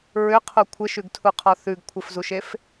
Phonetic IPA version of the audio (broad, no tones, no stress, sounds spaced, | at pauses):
ɹ ʏ qʰ u kʷʰ ɘ ʃ ʉ ɡ tʰ u qʰ ɔ θ ʉ ɡ kʷʰ ɘ f z u ʃ e f